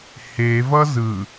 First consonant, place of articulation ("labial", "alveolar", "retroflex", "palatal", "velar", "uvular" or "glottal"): glottal